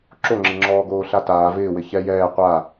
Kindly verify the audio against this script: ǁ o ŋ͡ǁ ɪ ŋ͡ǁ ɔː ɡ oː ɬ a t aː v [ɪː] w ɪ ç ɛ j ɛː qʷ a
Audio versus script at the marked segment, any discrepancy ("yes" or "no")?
no